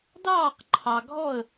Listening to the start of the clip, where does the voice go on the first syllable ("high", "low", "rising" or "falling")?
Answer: falling